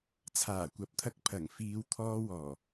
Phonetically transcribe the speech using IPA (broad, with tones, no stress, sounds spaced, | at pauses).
t͡sʰ aː˨˩ kʷ ɐ˨˥ p̚ t̪ʰ ɐ˧ k̚ pʰ ɐ˨˩ ŋ f iː˨˧ w t̪ʰ ɔː˧ w ɔː˨˩